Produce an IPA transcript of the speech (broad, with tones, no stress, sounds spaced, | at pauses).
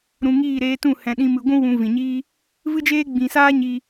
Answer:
ɾ ũ˨ ŋ iː˦˨ ɾ eː˧ t ũ˦˨ h ɛ̃˧ ɗ ĩ˦ m ɨ˧ ɡʷ ũ˦ w ũ˧ v ĩ˨ ɲ iː˦ | v ɨ˦ d͡ʒ eː˦ ɡ͡b ĩ˨ s aː˦ ɲ i˧